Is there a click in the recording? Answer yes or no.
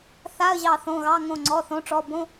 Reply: yes